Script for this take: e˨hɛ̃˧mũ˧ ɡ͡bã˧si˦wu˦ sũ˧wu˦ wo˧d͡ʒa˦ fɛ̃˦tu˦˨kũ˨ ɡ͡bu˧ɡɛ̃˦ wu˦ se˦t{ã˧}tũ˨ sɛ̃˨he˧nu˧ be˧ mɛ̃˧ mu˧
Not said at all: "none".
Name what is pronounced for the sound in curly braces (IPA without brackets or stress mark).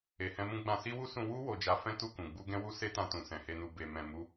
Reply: ã˧